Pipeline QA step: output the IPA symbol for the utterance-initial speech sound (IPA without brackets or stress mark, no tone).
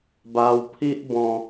b